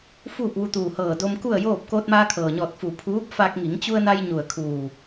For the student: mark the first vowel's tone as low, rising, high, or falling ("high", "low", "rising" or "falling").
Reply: falling